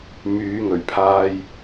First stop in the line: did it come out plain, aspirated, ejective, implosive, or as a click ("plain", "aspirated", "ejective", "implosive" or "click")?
aspirated